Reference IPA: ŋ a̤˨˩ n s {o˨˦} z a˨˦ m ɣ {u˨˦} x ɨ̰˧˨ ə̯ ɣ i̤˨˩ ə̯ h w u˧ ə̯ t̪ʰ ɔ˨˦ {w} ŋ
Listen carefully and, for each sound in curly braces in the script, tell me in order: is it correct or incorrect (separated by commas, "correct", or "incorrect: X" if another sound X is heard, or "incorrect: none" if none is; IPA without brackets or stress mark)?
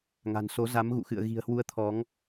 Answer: correct, incorrect: ṵ˧˨, incorrect: none